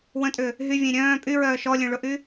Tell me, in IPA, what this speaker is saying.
w ə̃ tʼ ʏ | ɦ y vʲ ẽ ɾʲ œ̃ː pʼ y ɹ œː ʃ ɔ lʲ œ̃ ɭ ʊ ʔ y

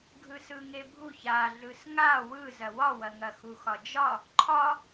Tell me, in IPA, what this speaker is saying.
ɡʱ ɯ s ɯ ŋ e bʱ u ç a ɮ ɯ s ŋ a w ɯ z ɐ w ɒ w ɐ ŋ ɐ x u x ɒ d͡ʒ ɒ | ǃʰ ɒ

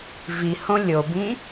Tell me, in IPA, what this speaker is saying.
v i h õ lʲ o b ĩ

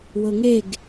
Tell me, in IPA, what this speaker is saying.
w ɤ ŋ e ɡ

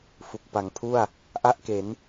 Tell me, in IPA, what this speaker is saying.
f u˨˩ k̚ p a˩˦ ŋ pʰ u˥˩ a̯ | ʔ a˥˩ ʔ k e˩˦ n

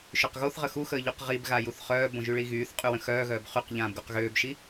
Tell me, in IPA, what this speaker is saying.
ʃ ø q ɣ o θ ʁ ə x u x əː ʎ u q ʁ i b ɣ a j u θ χ œː b õ ʒ y ɭ i ɣ yː θ qʼ y w ə̃ x œː ɣ œː b χ y q ʎ ãː b ɡ o q ɣ øː b ʃ i

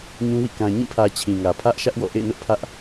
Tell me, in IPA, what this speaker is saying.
ɲ ũ˦ w ḭ˦˨ k ã˨ ɲ ĩ˦˨ pʰ ä˨ t͡ɕʰ ĩ˨ ŋ ä˨ pʰ ä˦ ʔ ʃ ä˦ ʔ w ɔ̰˦˨ ʔ ḛ˦˨ ɪ̯ n ʊ˦ ʔ pʰ ä˦ ʔ

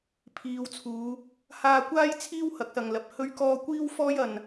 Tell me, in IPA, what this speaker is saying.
pʰ iː˨˧ w t͡sʰ uː˨˧ | h aː˧ kʷ aː˥ j t͡sʰ iː˥ w h ɐ˨˥ k̚ s ɐ˨ ŋ l ɐ˨ p̚ h ɵ˥ ɥ k ɔː˥ kʷ iː˥ w f ɔː˥ j ɐ˧ n

